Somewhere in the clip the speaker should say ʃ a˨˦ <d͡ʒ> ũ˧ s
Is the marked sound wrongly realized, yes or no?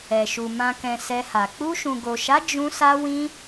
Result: no